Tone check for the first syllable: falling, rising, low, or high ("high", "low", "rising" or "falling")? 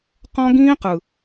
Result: high